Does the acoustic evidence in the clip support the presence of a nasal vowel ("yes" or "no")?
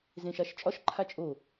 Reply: yes